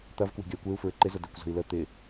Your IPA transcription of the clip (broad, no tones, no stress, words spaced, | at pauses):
t̪ɐv kwe̤ɡʲɐy̯kʷeu̯ fɹɪǃɪzʊ dekʷzə̤i̯lə t̪ɪ